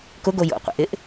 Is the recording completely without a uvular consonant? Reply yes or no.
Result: no